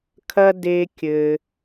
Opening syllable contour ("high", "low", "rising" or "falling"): high